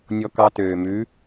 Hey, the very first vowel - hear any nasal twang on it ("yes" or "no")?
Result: no